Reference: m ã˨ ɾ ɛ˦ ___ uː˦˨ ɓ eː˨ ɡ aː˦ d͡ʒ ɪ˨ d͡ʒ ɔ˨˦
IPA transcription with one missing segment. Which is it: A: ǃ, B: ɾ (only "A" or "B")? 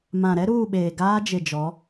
B